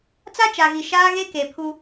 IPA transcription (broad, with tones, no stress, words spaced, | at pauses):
t͡sa˦t͡ʃa˨ɣi˨ ʃaː˦ɣe˦ke˨pʰu˦